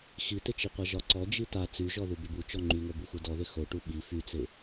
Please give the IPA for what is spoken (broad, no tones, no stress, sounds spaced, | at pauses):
x i t ɪ t͡ʃ i qʷ a ʒ ɒ ǀ ɔ d͡ʒ i t a t͡s y ʒ ɔ ð u b ɪ b u t͡ʃ ɔ ŋ͡ǃ y ŋ o b u x u d ɔ ð ɪ x o ʈ u ɓ i f y t͡s ɪ